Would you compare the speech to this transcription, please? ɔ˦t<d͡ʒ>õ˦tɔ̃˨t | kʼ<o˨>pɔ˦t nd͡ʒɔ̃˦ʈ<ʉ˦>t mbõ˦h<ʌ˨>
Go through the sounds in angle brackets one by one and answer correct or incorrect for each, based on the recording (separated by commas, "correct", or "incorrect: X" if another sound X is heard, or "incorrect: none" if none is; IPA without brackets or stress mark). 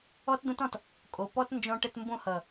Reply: incorrect: d̪, correct, incorrect: ə˦, correct